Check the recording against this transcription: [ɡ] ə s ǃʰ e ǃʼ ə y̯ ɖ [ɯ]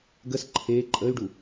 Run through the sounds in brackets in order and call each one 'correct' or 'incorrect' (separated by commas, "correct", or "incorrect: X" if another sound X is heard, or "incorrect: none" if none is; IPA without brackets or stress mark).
correct, incorrect: u